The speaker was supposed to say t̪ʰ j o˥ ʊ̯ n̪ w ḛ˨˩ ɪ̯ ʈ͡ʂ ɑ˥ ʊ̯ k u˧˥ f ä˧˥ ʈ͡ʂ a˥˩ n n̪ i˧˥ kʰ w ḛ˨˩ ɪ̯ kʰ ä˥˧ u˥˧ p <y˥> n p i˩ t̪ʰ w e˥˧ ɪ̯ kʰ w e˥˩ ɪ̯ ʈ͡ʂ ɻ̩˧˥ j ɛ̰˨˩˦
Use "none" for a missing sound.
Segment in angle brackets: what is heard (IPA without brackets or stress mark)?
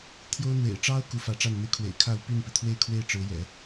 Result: y˥˩